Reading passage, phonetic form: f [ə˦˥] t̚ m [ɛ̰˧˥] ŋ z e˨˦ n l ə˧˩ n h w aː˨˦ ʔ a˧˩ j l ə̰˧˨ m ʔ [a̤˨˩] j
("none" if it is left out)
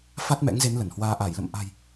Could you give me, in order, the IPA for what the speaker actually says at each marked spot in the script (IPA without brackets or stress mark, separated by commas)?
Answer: a˦˥, ɛ̰˧˥, a̤˨˩